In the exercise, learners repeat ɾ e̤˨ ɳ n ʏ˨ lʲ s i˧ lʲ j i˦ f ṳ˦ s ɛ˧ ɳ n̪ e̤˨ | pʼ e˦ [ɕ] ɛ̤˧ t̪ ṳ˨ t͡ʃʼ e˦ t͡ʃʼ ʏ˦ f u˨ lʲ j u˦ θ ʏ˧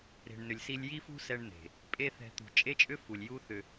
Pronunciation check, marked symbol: incorrect: θ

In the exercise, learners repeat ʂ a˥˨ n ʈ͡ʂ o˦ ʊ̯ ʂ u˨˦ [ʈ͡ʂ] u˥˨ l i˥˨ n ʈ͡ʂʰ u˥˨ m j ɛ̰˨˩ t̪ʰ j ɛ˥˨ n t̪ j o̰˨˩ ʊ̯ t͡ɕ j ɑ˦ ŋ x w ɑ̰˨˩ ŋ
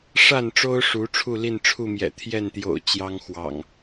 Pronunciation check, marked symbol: incorrect: ʈ͡ʂʰ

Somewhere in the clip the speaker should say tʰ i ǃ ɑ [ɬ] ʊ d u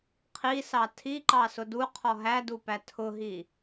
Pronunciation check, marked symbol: incorrect: s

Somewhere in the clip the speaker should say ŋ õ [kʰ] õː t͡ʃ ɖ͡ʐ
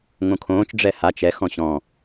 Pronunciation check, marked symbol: correct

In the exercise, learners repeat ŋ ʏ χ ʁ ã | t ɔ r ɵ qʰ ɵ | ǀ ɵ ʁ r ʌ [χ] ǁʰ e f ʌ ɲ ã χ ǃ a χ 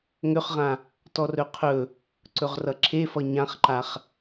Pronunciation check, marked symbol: incorrect: none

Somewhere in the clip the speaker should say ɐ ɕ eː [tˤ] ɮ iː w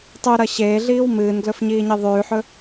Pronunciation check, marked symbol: incorrect: none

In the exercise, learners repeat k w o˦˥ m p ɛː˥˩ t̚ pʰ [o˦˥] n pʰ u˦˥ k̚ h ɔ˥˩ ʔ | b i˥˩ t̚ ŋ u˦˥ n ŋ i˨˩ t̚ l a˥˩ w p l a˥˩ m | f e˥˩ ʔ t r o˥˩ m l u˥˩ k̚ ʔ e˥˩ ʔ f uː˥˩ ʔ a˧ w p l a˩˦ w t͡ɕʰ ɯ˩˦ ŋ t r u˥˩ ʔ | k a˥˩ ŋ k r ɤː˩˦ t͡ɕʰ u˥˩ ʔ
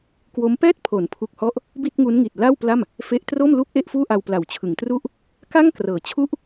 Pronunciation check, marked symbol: incorrect: o˩˦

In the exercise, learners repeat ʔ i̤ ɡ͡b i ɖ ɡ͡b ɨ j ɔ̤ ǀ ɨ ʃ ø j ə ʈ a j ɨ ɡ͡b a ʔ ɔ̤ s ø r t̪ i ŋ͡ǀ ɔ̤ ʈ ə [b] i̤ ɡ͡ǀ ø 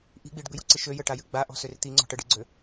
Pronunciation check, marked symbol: incorrect: ɖ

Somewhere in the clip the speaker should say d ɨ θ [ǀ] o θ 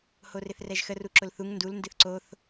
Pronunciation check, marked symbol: correct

